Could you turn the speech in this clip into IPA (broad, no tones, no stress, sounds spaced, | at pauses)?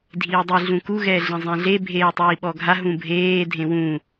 dʱ iː dˤ i ɮ ũ k u ɣ ɛː ɮ ẽ zˤ ẽ ɮ e bʱ eː tˤ iː ɓ ɔ ɡʱ a ɦ ũ bʱ eː dʱ ẽ w ũ